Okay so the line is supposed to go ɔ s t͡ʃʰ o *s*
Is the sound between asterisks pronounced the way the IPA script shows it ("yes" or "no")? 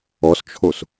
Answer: yes